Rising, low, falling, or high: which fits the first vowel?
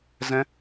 high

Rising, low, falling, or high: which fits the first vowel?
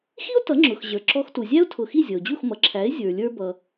high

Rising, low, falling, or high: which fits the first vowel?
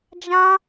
high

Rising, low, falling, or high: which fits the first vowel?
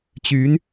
rising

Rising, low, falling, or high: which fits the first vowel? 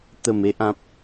low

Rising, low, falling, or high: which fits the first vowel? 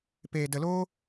low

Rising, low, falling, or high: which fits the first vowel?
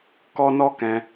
high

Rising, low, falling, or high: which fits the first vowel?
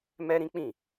high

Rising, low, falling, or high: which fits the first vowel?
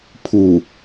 low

